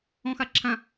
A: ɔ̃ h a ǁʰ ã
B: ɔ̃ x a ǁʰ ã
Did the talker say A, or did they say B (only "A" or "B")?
B